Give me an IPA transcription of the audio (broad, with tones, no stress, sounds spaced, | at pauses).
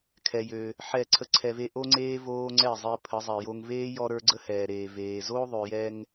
kʰ ɛ˧ j ø˧ | ħ ɛ˦˨ ǀʰ ə˦ ǀʰ ɛ˧ v e˦ ʔ o˦ ŋ͡ǀ eː˦ v oː˦ ŋ͡ǀ ɛ˦˨ zˤ e˧ pʰ ə˨˦ zˤ ɛ˨ j o˧ ŋ v eː˦ j ɔ˧ ɾ ə˞˦ ɡ͡ǀ ə˦ h ɛː˨ ɾ eː˨ v eː˨ z o˦ ðˤ ø˨ j ɛ˧ ŋ